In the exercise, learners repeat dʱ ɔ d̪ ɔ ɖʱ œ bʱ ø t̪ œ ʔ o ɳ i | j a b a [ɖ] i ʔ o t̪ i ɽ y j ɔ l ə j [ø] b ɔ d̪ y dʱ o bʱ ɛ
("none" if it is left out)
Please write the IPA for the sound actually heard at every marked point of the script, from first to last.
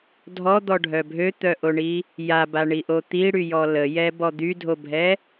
ɳ, ɛ

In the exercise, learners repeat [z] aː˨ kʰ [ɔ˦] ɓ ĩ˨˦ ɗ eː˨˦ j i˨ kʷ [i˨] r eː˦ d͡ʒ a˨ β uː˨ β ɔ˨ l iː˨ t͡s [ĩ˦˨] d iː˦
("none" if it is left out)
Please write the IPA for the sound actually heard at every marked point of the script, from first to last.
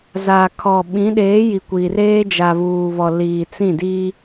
z, ɔ˨, i˨, ĩ˦˨

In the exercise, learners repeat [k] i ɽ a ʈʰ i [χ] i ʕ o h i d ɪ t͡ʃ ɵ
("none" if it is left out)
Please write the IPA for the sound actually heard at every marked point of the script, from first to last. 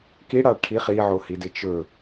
k, χ

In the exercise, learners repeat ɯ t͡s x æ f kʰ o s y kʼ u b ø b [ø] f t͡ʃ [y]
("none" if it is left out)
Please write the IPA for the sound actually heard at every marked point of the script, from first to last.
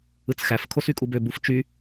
u, y

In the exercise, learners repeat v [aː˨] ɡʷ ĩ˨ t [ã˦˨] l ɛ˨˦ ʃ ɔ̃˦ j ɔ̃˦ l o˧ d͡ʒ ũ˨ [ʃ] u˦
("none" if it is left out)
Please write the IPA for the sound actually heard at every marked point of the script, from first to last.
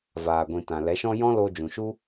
aː˨, ã˨, ʃ

